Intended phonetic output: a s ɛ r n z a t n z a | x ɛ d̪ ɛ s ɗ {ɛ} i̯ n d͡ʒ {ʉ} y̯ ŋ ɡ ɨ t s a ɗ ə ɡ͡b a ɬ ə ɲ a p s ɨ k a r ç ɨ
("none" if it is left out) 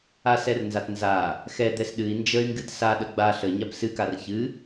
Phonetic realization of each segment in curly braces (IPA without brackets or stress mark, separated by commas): ɨ, ə